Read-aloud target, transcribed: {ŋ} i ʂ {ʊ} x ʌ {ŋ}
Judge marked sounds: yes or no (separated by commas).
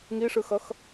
yes, no, no